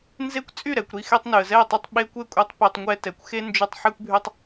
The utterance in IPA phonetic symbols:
n z e˦ kʷ t͡sʼ y˦˨ ɾ ɛ˨ kʷ ɾ i˧ x e˦ tˤ n y˨ ə̯ z ɛ˦˨ tˤ y˧ tˤ ɓ e˦ kʷ e˦ kʷʼ e˧ tˤ p y˨ tˤ ŋʷ ɛ˧ t ɛ˨ kʷ x e˦ n d͡ʒ y˧ tˤ ħ ɛ˦ kʷ bʱ y˦ tˤ

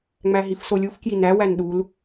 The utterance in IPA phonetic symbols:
ŋ͡m æ ɦ i f s o lʲ u f k j i n æ w æ n ɗ u l

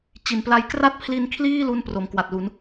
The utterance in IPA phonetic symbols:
t͡ɕ i˩˦ n p l a˦˥ j k r a˥˩ t̚ pʰ l i˧ n kʰ l iː˥˩ l u˥˩ n p r o˩˦ m k w a˨˩ t̚ l u˩˦ n

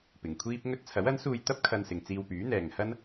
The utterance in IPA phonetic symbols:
p ɪ˨ ŋ kʷʰ iː˥ p̚ ŋ ɵ˥ t̚ t͡sʰ ɐ˨˥ w ɐ˨˥ n s uː˧ j t̪ ɐ˥ p̚ kʰ ɐ˧ n s ɪ˨ ŋ t͡s iː˧ w p yː˨˥ n̪ ɛː˨ ŋ h ɐ˥ n

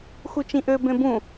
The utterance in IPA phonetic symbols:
x u t͡ʃ ĩ ʔ ø b ẽ b ũ

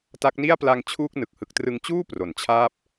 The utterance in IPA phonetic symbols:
t a˦˥ k̚ n i˥˩ a̯ p l a˧ ŋ t͡ɕʰ uː˥˩ k̚ n ɯ˨˩ k̚ h ɯ˨˩ k̚ t r ɯ˧ ŋ t͡ɕ uː˥˩ p r o˩˦ n t͡ɕʰ aː˥˩ p̚

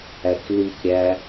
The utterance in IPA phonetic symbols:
æ k l i k ɾʲ æ

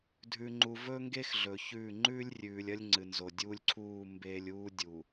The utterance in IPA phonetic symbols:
dʱ ʉ˨ ŋ͡ǃ u˨ v ɵː˦ ŋ ɡ e˦ x ɮ ɵ˨ ç ʉː˦˨ ŋ͡ǃ ʉː˦ lʲ rʲ ʉː˨ lʲ ɐ˦ lʲ ŋ͡ǀ ɨ˨ n z o˨ dʲ u˦ lʲ ǀʰ uː˦˨ m b eː˦ lʲ uː˦ dʲ u˨

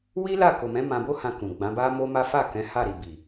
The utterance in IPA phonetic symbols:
w i˦ l a˦˨ k o˨ m ɛ̃˨˦ m ã˧ b o˦ h ã˧ k ũ˨ ɡ͡b ã˨˦ b a˦ m o˦ m a˦ f a˦˨ k ɛ̃˨˦ h a˦˨ ɾ i˨ b i˨

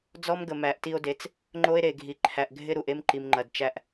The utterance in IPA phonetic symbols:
d͡z ɔ˦ m ɡ ə˨ m æ˨ ʔ t i˦ o̯ d e˨˦ t͡s | ŋ͡ǃ o˦ e̯ ɾ e˨ ɡʱ i˨ ǃʰ æ˨ ʔ ɡʱ ɪ˦ ɾ u˨ ʔ e˦ m ǃ i˨ m ŋ͡ǃ ɐ˨ d t͡ʃ æ˦ ʔ

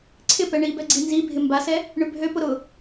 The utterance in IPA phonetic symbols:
ǀʰ ɪ p ɛ ɳ i b ɛ ɡ͡ǀ i n z i bʱ ɪ m b a s ɛ | ɳ ʏ bʱ ø p ʊ ɾ ʊ

